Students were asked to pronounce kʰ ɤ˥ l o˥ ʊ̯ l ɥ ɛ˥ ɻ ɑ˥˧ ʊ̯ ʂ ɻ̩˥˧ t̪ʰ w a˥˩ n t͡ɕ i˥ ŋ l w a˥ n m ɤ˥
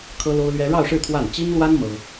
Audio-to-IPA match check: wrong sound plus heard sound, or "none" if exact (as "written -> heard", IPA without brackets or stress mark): none